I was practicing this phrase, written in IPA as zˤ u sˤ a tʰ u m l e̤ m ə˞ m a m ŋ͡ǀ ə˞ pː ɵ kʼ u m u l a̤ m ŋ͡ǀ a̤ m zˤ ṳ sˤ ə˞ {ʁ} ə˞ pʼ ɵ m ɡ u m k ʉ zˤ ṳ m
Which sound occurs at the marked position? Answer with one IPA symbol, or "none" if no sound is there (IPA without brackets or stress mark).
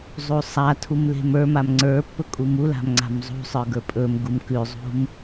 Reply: ɡ